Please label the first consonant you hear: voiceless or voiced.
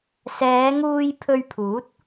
voiceless